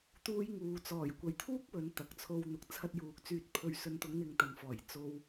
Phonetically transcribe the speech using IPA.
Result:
t̪ uː˧ j ŋ uː˨ t͡s ɔː˨˩ j kʷ ɐ˨ j t̪ʰ uː˥ k̚ w ɵ˨˧ n t̪ ɐ˨˥ k̚ t͡sʰ o˧ w n̪ ʊ˨ k̚ t͡sʰ ɐ˧ t̚ j uː˨ k̚ t͡s yː˧ t̚ pʰ ɵ˨ ɥ s ɵ˨ n t̪ ʊ˨˧ ŋ n̪ ɪ˧ ŋ t̪ ɐ˨ n f ɔː˨˩ j t͡s o˨ w

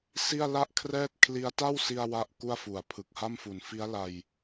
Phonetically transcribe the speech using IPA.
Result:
s i˥˩ a̯ l a˥˩ ʔ kʰ r ɛː˥˩ t̚ kʰ l i˦˥ a̯ t a˥˩ w s i˧ a̯ w a˦˥ ʔ k u˥˩ a̯ f u˨˩ a̯ pʰ ɯ˨˩ k̚ h a˥˩ m f u˩˦ n f i˦˥ a̯ l a˧ j

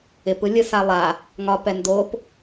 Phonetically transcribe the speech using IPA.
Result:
ɪ p ɯ lʲ ɯ s a lˠ a | ŋ ɒ p ɛ n d o p

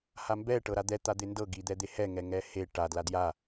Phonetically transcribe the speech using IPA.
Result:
h a m b ɛ ʈ ɤ ɾ a d̪ ɛ t̪ a d̪ e n d ɤ ɡ i d̪ ɛ d̪ e h ɛ ŋ ɛ ŋ ɛ h e ʈ a d l a d j a

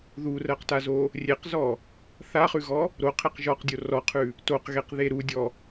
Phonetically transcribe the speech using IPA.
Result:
ð u r ɜ q t a z o | rʲ e q z ɔ | θ a χ ʉ ɣ ɔ | ɾ o qʰ e q ʒ ɔ q dʲ o r ɔ qʰ ʉ | t o q ɣ e q ð e ɾ u dʲ ɔ

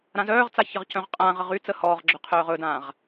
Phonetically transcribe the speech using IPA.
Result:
ɾ ã z œː ʁ t͡s a ç ə ʁ c œ̃ ʁ qʼ ãː ʁ ə ʁ y t͡s ə h ɔː ʁ ɡ͡ǁ œ qʰ œː ʁ ɵ d ãː ʁ

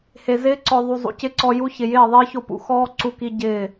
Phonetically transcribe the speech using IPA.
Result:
h e˨ z ɪː˦ ǀ ɔ˨ ðˤ u˨ zˤ ṵ˨ c ɪ˦ ǀ ɔ˧ j u˧ ç ɪ˨ j ɪː˦˨ ðˤ ɪː˦ ç o˧ p ṵ˨ x ɔː˦ ǀ u˧ k i˧ ɟ ɪː˦˨

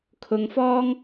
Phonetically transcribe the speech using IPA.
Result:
kʰ ʊ˧ ŋ f ɔː˥ ŋ

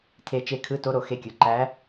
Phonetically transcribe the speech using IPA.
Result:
tʰ e˧ t͡ʃ e˧ kʰ ɯ˧˥ t o˧˥ ɾ o˩˧ x e˧ kʲ ɯ˩ ǃ æ˧˥

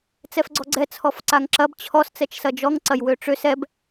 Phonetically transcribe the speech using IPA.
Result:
t͡s ɛ f ɡ͡ǀ ɔ ɡ͡ǀ ɛ t͡sʰ ɔ f ǀ a ŋ ǁ ɐ b t͡ɕʰ ɔ s t͡s ɛ t͡ʃ s ɐ d͡ʒ ɔ ŋ ǀ ɐ j w ø ʈ͡ʂ ø s ɛ b

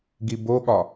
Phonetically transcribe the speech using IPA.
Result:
ɡ i b o ɠ ɒ

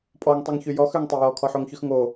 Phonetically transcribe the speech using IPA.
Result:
pʼ ɔ ŋ tˤ y ŋ ç y j ɔ x ø ŋ tˤ ø j ɔ kʰ ɔ ħ o ŋ ç ʉ x ŋ o

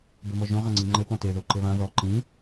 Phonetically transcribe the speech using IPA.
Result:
b ɘ m ɔ ʒ õ ʁ ã ŋ͡ǀ i ŋ͡ǃ ɘ p ɔ̃ t e ð o ǃ ɘ β ã ð ɔ ǃ ĩ

